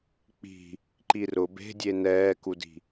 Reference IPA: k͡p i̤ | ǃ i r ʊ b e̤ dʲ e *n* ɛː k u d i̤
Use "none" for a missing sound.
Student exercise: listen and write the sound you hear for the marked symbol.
n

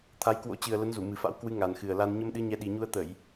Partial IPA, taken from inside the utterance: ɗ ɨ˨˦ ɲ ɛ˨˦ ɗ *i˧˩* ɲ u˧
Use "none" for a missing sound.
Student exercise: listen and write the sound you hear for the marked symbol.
i˨˩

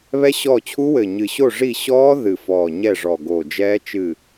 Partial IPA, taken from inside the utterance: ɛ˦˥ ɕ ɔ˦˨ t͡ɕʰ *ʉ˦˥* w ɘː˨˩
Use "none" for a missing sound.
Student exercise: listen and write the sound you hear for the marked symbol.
u˦˥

